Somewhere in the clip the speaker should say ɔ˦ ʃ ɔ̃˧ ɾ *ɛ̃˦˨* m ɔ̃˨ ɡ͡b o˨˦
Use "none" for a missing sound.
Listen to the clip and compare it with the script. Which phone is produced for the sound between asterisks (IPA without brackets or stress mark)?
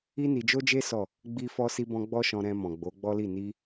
ɛ̃˧